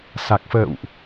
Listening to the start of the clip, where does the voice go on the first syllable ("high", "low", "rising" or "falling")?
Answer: low